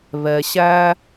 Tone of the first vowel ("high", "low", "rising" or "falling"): low